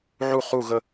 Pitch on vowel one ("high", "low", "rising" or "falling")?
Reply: falling